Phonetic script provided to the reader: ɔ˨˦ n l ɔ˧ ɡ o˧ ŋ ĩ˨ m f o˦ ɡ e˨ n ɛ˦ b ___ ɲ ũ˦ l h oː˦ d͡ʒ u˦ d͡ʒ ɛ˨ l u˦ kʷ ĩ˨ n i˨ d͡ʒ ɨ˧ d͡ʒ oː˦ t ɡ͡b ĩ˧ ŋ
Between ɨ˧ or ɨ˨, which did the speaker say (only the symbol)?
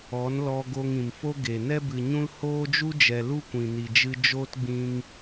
ɨ˨